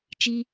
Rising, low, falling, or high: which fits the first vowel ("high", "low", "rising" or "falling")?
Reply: high